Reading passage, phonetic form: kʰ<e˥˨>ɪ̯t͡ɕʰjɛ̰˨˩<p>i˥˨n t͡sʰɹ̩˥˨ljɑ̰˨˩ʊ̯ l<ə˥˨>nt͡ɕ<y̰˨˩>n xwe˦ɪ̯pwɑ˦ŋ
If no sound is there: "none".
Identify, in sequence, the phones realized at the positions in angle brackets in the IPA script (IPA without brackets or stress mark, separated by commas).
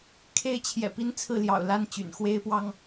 e˥˨, p, a˥˨, y̰˨˩